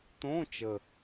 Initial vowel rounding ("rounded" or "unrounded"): rounded